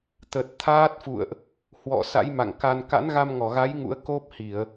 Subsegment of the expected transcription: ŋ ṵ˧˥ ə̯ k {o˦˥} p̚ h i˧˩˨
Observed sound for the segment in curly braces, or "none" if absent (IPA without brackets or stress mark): o˦˥